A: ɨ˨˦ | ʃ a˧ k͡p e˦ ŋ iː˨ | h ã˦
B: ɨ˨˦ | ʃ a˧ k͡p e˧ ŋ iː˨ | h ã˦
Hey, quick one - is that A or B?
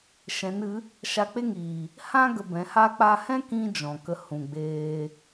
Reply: A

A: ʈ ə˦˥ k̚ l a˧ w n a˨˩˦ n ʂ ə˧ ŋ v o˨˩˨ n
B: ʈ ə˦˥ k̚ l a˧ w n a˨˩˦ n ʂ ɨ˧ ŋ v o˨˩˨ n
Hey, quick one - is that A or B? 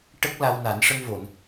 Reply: A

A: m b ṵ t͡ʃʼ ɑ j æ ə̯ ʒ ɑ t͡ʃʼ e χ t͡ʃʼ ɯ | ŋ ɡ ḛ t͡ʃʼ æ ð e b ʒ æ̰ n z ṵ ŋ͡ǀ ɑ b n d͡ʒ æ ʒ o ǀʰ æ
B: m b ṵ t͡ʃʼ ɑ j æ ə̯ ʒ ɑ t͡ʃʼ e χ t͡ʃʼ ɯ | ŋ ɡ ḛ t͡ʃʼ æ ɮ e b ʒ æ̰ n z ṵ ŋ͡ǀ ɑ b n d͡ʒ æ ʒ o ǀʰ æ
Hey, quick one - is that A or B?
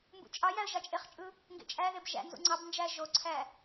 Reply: A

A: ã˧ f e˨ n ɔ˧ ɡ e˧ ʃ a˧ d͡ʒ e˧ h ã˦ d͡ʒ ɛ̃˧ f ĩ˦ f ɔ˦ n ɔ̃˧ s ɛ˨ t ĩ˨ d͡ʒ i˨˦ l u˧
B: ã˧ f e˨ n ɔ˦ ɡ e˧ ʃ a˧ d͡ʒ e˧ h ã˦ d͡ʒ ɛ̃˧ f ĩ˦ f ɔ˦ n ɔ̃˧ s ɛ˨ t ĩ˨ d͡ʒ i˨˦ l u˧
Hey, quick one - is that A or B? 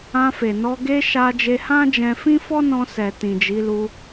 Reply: A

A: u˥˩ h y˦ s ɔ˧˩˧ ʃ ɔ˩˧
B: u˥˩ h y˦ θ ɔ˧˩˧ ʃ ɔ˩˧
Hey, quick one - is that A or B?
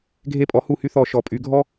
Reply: B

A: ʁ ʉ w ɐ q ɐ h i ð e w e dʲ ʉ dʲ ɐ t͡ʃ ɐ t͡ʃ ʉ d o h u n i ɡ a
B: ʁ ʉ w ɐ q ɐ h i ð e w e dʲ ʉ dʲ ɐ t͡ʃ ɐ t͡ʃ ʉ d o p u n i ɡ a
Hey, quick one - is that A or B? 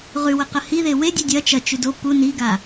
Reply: B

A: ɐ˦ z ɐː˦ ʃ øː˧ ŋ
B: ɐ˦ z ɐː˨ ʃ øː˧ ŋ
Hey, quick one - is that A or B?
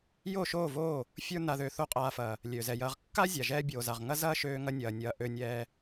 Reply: A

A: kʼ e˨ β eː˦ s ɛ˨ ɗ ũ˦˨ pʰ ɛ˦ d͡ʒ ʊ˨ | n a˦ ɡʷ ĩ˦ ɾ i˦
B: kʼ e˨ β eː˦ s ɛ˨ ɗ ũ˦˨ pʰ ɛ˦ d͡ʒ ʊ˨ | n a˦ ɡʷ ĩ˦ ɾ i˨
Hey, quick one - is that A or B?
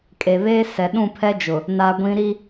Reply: A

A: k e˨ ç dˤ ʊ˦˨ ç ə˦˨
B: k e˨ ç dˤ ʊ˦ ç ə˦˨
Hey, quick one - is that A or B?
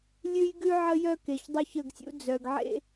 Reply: B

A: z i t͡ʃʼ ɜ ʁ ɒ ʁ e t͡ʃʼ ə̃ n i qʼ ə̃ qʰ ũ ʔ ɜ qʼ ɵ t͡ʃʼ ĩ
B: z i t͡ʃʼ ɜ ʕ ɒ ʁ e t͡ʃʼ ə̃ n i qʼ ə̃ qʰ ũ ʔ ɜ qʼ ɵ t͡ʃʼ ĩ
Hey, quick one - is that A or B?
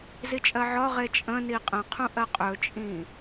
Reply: B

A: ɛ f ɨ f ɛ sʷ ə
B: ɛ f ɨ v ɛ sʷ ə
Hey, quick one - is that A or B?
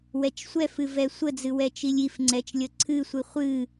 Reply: B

